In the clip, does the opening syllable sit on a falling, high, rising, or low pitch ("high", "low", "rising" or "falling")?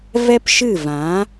high